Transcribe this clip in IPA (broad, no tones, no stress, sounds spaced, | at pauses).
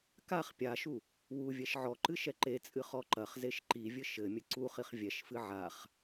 k a χ pʲ a ʃ u | w u vʲ ɛ ʃ ʕ ɔ ǃ ɨ ʃ ɛ ǃ e t͡sʼ ɨ χ ɔ ǃ ɐ χ z e ʃ ǃ i vʲ ɘ ʃ ɘ mʲ ɘ ǀ u χ i χ vʲ ɛ ʃ f ɨ ʕ a χ